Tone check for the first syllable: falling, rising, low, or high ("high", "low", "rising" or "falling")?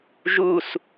falling